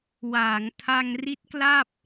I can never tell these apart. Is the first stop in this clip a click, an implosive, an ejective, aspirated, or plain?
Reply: aspirated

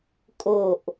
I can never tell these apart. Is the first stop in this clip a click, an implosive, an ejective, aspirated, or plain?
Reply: ejective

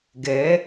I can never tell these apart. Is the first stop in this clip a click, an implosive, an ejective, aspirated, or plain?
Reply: plain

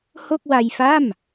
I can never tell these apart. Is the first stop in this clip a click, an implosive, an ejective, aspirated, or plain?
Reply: plain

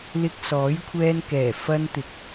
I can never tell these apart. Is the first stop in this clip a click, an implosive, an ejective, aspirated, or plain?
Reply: plain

